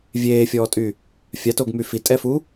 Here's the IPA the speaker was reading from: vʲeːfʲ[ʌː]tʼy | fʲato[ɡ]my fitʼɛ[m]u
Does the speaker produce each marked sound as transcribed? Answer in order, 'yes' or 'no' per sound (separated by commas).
no, yes, no